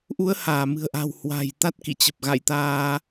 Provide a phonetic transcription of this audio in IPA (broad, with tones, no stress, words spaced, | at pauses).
ʔu˨˦ə̯ haː˧˩mɨ̤˨˩ə̯ʔa̤˨˩w hwa̤˨˩j t̪a˦˥t̚kḭ˧˨t͡ɕə˨˩p̚ ɣa̰˧˨jt̪aː˧